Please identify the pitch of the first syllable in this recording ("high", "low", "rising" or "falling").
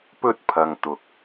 high